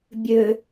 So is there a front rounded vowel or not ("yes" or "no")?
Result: yes